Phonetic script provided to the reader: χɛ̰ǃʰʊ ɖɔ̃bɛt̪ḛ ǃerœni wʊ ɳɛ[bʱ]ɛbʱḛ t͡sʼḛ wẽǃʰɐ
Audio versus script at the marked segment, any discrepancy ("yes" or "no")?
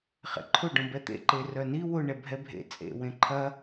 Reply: no